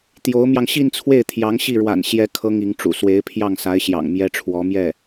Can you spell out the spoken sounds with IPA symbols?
t̪ j o˧˥ ʊ̯ m j ɑ˧ ŋ ɕ i˥˧ n t͡sʰ w e˥˩ ɪ̯ t̪ʰ j ɑ˧˥ ŋ ɕ i˥˩ ɻ w a̰˨˩ n ɕ j ɛ˧˥ kʰ ɤ˥ ŋ i˧˥ ŋ ʈ͡ʂ ṵ˨˩ s w e˧˥ ɪ̯ pʰ j ɑ˥˩ ŋ s a˧˥ ɪ̯ ɕ j ɑ̰˨˩ ŋ m j ɛ˥ ʈ͡ʂʰ w ɔ˧˥ m j ɛ˥˩

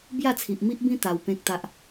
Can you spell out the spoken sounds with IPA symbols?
b j a˥˧ t͡sʰ i˨ ʔ m i˦ ʔ b ĩ˦ t̪ a˧ w p ẽ˦ k̚ t̪ a˦ ʔ

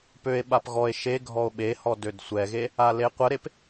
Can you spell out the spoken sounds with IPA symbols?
p ø e̯ ɓ a p ɣ ɔ e̯ ʃ e ɡʱ ɔ o̯ ɓ e h ɔ d ø d sʷ ɛ ɣ e | a l e qʷ ə ɾ e p

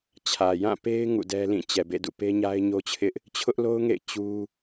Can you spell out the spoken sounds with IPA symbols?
t͡ɕʰ ä˨ j ã˦˨ p e˦ ɪ̯ ŋ ṵ˦˨ d ɛ˦ l ĩ˦˨ t͡ɕ ɛ˨ b ḛ˦˨ d ṵ˦˨ p e˦ ɲ a˦ ɪ̯ ɲ o˦ t͡ɕʰ ɪ˦ ʔ | t͡ɕʰ ʊ˦ ʔ l o˦ ʊ̯ ŋ ḛ˦˨ ɪ̯ t͡ɕ u˦

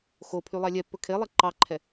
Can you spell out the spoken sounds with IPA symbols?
x o pʰ y lˠ ɑ lʲ ɛ pː ɵ kʰ e lˠ ɛ ǃ ɑ ǃʰ ɛ

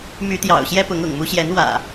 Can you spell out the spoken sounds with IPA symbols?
m y˨˦ t̪ j ɑ̰˨˩ ʊ̯ ɕ j ɛ˦ p ʊ˨˦ ŋ ʊ̰˨˩ ŋ m u˦ ɕ j ɛ˨˦ n w ä̰˨˩

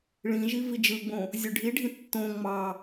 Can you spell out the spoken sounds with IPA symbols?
ɭ ĩ ʒ i v i d͡ʒ ɯ ɡ͡b õ | zʲ ø ɖʱ i ɖʱ ĩ tː õ ŋ͡m ɑ

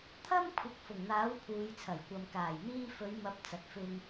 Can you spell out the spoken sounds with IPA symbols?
t̪ʰ ɐ˥ m kʷʰ ɪ˨ k̚ f ʊ˨˩ ŋ n̪ aː˨˥ w pʰ uː˨ j t͡sʰ ɐ˨˩ j kʷ ɐ˨ m k aː˨˩ j n̪ iː˧ f ɵ˨˧ ɥ m ɐ˨˥ p̚ t͡s ɐ˨ t̚ f ɪ˧ ŋ

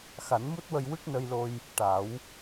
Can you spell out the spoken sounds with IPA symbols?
x a˨˩˦ n m u˦˥ t̚ w ə˧ j w ɨ˦˥ k̚ n ə˧ j l o˧ j | ʈ a˨˩˦ w

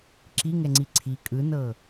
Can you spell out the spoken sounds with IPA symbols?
ǁ i ŋ ɛ ŋ͡ǀ i ǀʰ i kʼ ɯ n ɤ

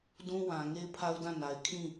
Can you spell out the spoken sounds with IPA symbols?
d ũ˦ w ã˨ ŋ e˦ ɪ̯ pʰ a˦ ʊ̯ d ã˦˨ n a˨ ɪ̯ kʰ ĩ˦˨

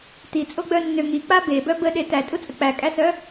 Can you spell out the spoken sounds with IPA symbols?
t i t͡sʼ o ɡ͡b œ nː ø ŋ i k͡p a b e b œ b ə ɗ e t æ tʼ u t͡sʼ ə k͡p æ kʼ æ s œ

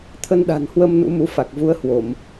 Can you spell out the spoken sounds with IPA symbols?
t̪ʰ ə˧ n ɗ a̤˨˩ n h w ə˧ m n ṵ˧˥ m u˨˦ f a˨˩ k̚ v u˨˦ ə̯ h w o˧˩˨ m

